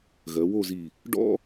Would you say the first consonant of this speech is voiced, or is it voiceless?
voiced